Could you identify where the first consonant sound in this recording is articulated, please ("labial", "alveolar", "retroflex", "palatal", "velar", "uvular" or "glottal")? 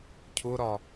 palatal